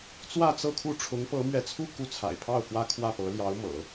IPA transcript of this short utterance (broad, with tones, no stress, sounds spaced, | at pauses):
t͡s w ä˥˧ t͡s ɤ˥˧ kʰ u˥˩ ʈ͡ʂʰ ʊ˧˥ ŋ p ɤ˧˥ m ɥ ɛ˧˥ t͡sʰ u˥˧ k u˥˩ t͡sʰ a̰˨˩ ɪ̯ pʰ ɑ˥˩ ʊ̯ k w ä˥ kʰ w ä˥˩ p ɤ˧˥ l j ɑ˧˥ ʊ̯ m ɤ̰˨˩˦